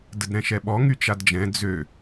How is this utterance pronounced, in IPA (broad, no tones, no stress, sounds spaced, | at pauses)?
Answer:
d ə d ɾ ɛ̃ ʃ ɛ ɓ ɔ ŋ y t͡ʃ a d d͡ʒ ɛ̃ d͡z ø